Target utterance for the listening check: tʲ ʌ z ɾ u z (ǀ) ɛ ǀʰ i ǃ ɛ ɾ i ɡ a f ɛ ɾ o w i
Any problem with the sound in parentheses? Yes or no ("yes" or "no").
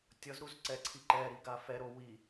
no